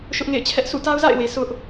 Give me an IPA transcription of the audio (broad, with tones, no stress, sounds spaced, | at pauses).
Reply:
ʃ ʊ˦ ʔ ŋ ḛ˦˨ ɪ̯ t͡ɕʰ ɛ˦ ʔ sʰ ṵ˦˨ t a˦ ʊ̯ z a̰˦˨ ɪ̯ w e˨ sʰ ʊ˦ ʔ